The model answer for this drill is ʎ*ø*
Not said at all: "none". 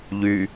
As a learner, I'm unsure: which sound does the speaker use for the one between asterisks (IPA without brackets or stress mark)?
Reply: y